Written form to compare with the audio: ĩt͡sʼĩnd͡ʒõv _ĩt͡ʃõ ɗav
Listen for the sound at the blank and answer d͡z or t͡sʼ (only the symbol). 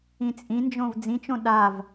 d͡z